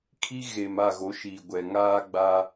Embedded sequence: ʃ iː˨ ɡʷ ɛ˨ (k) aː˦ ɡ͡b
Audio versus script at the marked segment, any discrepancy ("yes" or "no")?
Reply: yes